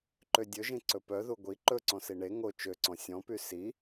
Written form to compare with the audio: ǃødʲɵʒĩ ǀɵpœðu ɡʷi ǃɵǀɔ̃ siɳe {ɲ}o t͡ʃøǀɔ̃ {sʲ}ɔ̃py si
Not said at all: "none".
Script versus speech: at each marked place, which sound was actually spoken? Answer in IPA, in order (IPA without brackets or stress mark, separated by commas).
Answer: ŋ, sʲ